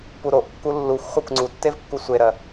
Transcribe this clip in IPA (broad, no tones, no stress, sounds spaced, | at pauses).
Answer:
p u ɾ o ʔ kː u lː u xʷ χʷ ɜ kʷ ŋ͡ǀ u tː e v kː u sʷ e ɾ ɜ